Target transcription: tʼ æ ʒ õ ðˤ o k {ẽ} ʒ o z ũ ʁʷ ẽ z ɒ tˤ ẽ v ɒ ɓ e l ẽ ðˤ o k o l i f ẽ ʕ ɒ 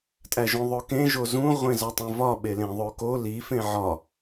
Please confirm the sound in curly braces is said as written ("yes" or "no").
yes